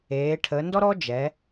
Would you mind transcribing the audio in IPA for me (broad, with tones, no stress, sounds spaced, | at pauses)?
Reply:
eː˩˧ ʈʰ əː˩˧ n d ɔ˥ ɾ ɔː˥ d͡ʒ ɛ˩˧